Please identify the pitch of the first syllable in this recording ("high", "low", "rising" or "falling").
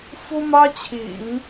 high